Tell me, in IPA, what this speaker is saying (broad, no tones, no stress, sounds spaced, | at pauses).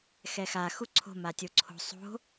x ɛ x a x u ǀʰ o̤ m a tʲ o ǀʰ o̤ sˤ o̤